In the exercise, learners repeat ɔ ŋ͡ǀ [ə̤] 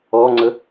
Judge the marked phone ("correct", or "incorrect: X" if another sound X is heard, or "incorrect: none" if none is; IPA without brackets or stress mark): incorrect: ə